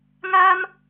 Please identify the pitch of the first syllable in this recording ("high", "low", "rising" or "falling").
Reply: high